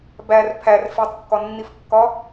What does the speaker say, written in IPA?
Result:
b æ r pʰ æ r f e tˤ kː ɒ nː i f kː ɒ

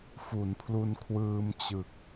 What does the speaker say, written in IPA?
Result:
f u˩˦ n pʰ l u˧ n kʰ w ɯː˧ m t͡ɕ ɯ˨˩ k̚

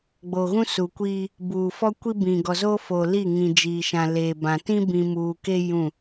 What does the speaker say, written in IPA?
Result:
ɡ͡b o˨ ɣ ũ˦ s u˨ kʷ iː˦ | b uː˨ f ɔ˦ kʷ i˦ b ĩ˨ ɡ ɔ˨ z oː˦ f o˨ l i˦˨ ŋ ĩ˨ d͡ʒ iː˨ ʃ ã˨ l eː˨ b ã˨ t ĩ˦ b ĩ˨ m uː˨ k e˦ j ũ˦˨

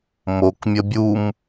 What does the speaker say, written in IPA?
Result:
m o k mʲ ə bʲ u m

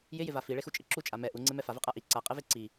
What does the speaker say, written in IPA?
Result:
j ɪ j ɪ v a f i ɭ e x u t͡ʃʼ ɪ ǁ u t͡ʃʼ a m ɛ ʔ u ŋ͡ǀ e m ɛ f a v ɛ qʼ a ʔ i ǀ a qʼ ɛ v e ǀ i

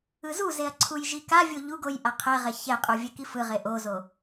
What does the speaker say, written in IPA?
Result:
ɯ z u z e ɐ̯ ǀʰ u j ʒ i k a vʲ o ʎ u ɡ o j ʔ a qʰ ɛ ʁ ɛ ç ɛ qʼ u vʲ ɛ k i f ɯ ʁ e ʔ o z o

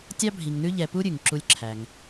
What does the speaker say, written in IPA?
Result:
tʲ ɑ˦ bʱ i˨ ŋ n ʉ˦ ʎ ɛ˨ p u˦ ɾʲ ʉ˩ ŋ ǁ u˦ lʲ ǁʰ æ˨ ŋ

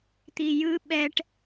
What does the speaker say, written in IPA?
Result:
t̪ i j ɯ ɓ ɛ ʈ

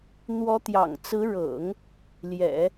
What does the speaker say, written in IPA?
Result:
n̪ w ɔ˧˥ t̪ j ɑ̰˨˩ ŋ t͡s ɹ̩˧˥ ɻ ɤ̰˨˩˦ ŋ | l j ɛ̰˨˩˦

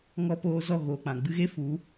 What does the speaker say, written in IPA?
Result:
ŋ ɔ˧ p oː˧ z ɔ˦˨ ɣ oː˨ k͡p ã˨ ɡ͡b ɨ˧ ɣ e˦ f u˨˦

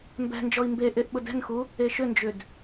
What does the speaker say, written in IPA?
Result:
m b ɛ̤ n d͡ʒ ɔ i̯ m b e ʔ e ʔ ɓ ʊ d ɛ̤ n x u | e ʃ ʏ n d͡ʒ ʏ d

